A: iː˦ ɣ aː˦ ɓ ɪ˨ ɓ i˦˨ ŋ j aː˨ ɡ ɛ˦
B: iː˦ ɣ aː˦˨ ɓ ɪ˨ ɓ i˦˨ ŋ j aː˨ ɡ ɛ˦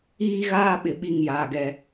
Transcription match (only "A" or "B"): A